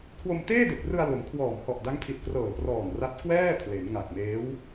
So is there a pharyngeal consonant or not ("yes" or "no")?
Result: no